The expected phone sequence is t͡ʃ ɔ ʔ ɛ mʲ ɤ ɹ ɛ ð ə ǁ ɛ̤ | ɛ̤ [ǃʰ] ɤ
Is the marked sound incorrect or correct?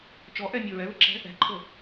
correct